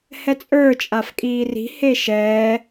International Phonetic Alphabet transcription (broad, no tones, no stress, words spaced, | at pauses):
hɛt͡sʼə˞ t͡ʃʼafkʼiːri̤ heʃɛː